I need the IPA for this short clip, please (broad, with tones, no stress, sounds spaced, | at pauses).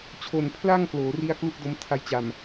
t͡ɕʰ o˨˩ n pʰ l a˥˩ ŋ k l oː˩˦ r i˥˩ a̯ k l u˥˩ k̚ d o˦˥ m tʰ a˦˥ j t͡ɕ a˨˩ m